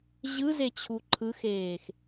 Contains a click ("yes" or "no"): yes